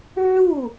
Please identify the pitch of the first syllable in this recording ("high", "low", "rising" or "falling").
falling